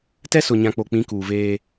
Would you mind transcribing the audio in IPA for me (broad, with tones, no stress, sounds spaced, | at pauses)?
t ɛ˦ s ʊ˨ ɲ ã˨ k͡p o˨ k͡p ĩ˨˦ k uː˨ v eː˦